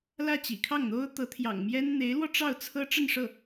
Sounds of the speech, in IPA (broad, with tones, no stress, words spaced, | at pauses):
lä˥˩ t͡ɕḭ˨˩kʰɑ˥˩ŋn̪o˥ʊ̯ t̪ɤ˧˥t̪ʰjɑ̰˨˩ŋmjɛ˥n n̪e˧˥ɪ̯lwɔ˧ ʈ͡ʂɑ˥˩ʊ̯t͡sʰɤ˥ ʈ͡ʂə˥˧nʂɤ˥˩